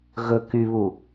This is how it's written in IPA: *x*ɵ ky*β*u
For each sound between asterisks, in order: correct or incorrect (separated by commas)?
incorrect, correct